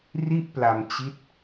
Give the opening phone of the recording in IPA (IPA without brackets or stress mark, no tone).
r